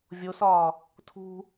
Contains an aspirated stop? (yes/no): yes